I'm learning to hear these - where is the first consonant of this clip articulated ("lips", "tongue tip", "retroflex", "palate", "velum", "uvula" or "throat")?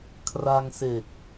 velum